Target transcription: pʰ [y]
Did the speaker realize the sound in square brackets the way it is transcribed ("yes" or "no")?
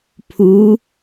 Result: no